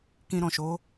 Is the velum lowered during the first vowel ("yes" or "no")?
yes